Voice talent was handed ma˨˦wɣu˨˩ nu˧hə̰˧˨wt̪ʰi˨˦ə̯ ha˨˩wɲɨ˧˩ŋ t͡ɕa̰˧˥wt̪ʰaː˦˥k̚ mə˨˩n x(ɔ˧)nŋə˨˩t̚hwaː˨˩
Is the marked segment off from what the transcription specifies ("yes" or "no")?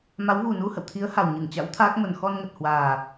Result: no